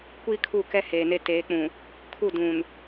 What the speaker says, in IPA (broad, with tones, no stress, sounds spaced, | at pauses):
kʷ iː˦ kʰ u˦˨ k ɛ˦ h eː˨ n e˦ t eː˨˦ k͡p ũ˨ | kʰ u˦˨ d ũ˨ n